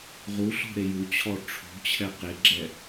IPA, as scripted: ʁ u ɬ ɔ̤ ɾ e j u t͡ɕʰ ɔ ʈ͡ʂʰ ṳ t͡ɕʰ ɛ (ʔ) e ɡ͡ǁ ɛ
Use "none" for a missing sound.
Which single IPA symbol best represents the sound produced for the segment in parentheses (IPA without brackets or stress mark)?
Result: q